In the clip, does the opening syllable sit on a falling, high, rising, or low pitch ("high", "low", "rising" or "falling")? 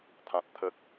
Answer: high